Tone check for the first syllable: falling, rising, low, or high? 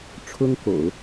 high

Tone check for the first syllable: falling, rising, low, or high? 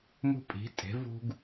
high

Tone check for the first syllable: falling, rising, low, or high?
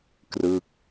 falling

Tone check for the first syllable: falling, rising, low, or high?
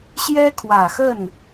high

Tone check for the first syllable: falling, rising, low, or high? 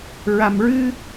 low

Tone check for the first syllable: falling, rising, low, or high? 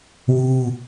high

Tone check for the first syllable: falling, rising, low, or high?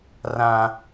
high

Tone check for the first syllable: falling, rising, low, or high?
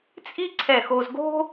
high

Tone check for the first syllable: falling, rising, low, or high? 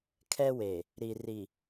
high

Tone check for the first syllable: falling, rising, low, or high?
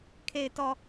low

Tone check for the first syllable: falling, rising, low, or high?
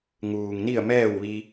low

